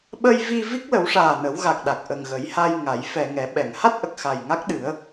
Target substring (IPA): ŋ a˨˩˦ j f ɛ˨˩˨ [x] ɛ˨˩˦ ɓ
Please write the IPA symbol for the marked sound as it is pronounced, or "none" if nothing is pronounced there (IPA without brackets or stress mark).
ŋ